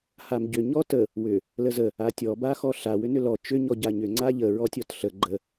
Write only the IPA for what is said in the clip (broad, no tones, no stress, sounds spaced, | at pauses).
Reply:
h a m ɟ ʏ ɲ ɔ t ə | w ʏ | l ə z ə | a tʲ ɔ b a x ɔ ɬ a w ʏ n ʏ l ɔ t͡ʃ ʏ ɲ ɔ ɟ a ɲ ʏ ŋ͡ǀ a ʎ ə ɹ ɔ tʲ ɔ t ɬ ə ɡ͡ǃ ə